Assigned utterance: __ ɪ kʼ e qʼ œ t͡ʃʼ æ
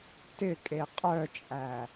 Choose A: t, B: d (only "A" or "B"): A